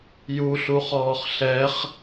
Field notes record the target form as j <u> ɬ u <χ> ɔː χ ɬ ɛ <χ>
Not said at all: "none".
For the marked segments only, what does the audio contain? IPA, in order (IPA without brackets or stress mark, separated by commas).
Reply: u, χ, χ